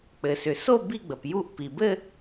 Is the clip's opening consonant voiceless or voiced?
voiceless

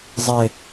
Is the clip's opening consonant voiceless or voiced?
voiced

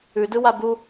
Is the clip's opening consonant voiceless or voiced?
voiced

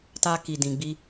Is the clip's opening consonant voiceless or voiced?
voiceless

